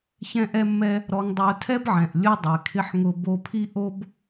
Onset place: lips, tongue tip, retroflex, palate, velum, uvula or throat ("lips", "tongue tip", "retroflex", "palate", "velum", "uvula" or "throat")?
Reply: palate